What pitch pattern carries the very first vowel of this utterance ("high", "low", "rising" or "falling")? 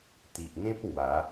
low